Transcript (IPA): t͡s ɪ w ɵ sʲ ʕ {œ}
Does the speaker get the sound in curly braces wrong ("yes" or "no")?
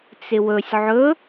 yes